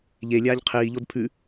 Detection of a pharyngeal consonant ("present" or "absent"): absent